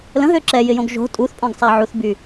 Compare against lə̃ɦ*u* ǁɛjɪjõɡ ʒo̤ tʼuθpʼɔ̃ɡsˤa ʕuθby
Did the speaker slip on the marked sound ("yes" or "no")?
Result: yes